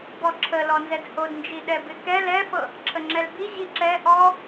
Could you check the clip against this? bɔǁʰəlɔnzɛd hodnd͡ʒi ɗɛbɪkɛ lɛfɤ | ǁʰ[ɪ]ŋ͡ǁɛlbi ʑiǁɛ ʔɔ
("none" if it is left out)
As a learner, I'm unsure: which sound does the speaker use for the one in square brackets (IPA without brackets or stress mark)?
ə